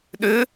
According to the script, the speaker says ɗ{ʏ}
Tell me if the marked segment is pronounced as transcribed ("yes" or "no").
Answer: yes